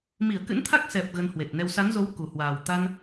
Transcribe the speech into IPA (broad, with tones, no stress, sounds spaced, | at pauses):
m i˧˩ ə̯ k ɨ̰˧˥ n t̪ʰ a˦˥ k̚ s ɛ˨˩ p̚ ɣ ə˧ n h w e˨˩ t̚ n ɛ˧ w s a˨˦ n z o˨˦ w k u˨˩ h w aː˨˩ w t̪ a˧ n